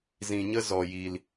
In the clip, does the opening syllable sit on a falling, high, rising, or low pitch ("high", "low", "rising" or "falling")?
low